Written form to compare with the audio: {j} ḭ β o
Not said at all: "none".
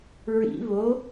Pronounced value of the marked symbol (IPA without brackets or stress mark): ɹ